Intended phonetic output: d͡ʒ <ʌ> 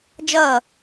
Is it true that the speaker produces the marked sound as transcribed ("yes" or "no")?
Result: no